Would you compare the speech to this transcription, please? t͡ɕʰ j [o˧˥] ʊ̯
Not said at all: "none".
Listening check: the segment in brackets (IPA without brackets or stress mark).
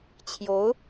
o˧˥